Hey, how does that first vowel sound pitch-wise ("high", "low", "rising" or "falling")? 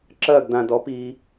falling